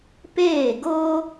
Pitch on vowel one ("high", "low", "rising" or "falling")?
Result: falling